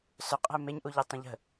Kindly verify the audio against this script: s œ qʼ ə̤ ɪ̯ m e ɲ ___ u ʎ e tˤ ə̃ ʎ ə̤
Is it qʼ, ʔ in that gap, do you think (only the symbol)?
ʔ